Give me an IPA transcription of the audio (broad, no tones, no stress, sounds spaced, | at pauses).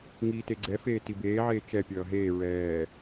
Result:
ŋ iː t e ɡ͡ǀ ɛ f eː t i b eː ʕ eː t͡ʃ ɛ pʲ ʌː ɦ eː ɹ ɛː